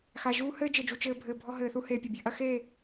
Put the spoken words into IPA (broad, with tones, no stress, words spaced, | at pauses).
xa˨ ʒuː˦hɘː˦d͡ʒɘ˨d͡ʒu˨ t͡ʃɘː˧bʱɘː˨ bʱɔ˧ɦɘː˨θu˧ heː˨pʲɐ˨bʲɨ˨ ʔɐ˧xeː˦˨